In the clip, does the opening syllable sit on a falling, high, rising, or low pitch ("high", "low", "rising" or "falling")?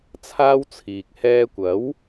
high